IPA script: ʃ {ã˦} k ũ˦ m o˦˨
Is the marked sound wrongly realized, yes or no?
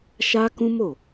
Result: yes